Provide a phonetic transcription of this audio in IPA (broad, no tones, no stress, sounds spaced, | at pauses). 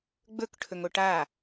ɡ͡b ɵ k ʈʰ ɵ ŋ o ʈ a